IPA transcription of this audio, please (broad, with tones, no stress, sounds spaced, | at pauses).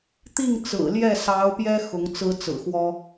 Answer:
t̪ i˥˩ ŋ t͡s ɹ̩˨˩ l j ɛ˥˩ s ɑ˧˥ ʊ̯ p j ɛ˥ x ʊ˧˥ ŋ t͡s ɹ̩˥ t͡s ɹ̩˨˩ x w ɔ˥